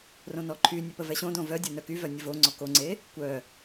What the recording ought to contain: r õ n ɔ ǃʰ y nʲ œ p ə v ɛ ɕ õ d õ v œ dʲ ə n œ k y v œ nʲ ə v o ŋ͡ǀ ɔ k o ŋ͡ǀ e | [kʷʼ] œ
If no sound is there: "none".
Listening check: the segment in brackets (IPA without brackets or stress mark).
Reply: kʷ